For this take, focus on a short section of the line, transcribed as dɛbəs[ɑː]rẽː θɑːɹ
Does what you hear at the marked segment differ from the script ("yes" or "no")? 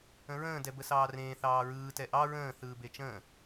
no